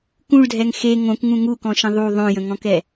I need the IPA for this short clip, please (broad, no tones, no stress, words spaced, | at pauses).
kũɭdʱɛŋ xe ŋõkŋũ ŋukɔ̃ʃə̃ ðˤu ðˤõjə̃ŋɔ̃kɛ